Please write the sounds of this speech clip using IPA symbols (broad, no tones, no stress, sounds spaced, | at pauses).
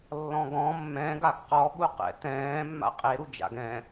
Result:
lː ɔ̃ ɡ ɔ̃ mː ɛ̃ ɡ a ɡ q ɔ ɠ u q ɛ̰ t ɛ̃ː mː a̰ qʼ e ɾ u d͡ʒ a̰ ɡ ɛ̃